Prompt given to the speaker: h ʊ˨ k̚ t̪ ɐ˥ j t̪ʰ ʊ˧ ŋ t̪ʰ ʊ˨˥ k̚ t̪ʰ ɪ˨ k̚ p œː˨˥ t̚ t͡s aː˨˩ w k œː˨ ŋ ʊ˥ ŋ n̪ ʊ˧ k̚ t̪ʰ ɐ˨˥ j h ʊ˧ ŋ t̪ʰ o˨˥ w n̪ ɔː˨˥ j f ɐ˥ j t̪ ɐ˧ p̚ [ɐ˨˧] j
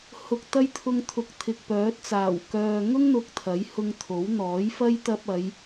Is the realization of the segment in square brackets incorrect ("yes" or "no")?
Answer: no